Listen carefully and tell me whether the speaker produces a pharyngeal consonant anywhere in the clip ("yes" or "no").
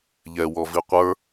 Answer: no